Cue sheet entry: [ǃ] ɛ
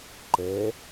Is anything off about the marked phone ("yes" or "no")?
no